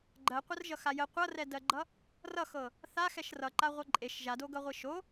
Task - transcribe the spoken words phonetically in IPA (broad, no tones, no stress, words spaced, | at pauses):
ɡ͡ǃɜqʷərʒʌxa jə qʷʌrɛdɜɡ͡ǃʌ | rʌxɤ | θaxɛʃ rʌǃaʁʷʌ ǃʼeʃ ʒadoɡʌʁʷi ʃo